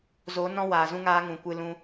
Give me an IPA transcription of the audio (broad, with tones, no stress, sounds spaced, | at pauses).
z o˨˦ n ɔ̃˧ w aː˨ z ũ˧ ŋ aː˧ ŋ ũ˨ kʷ ɨ˧ l ũ˧